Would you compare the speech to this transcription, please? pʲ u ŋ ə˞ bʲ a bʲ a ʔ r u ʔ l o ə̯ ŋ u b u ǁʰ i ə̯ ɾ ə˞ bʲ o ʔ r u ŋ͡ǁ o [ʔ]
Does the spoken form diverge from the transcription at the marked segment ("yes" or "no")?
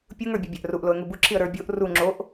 no